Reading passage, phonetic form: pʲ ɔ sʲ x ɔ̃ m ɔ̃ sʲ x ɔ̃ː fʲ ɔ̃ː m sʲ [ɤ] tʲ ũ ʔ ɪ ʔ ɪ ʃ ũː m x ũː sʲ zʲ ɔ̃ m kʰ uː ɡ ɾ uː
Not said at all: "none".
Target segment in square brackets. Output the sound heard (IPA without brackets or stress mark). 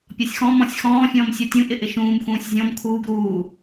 ɔ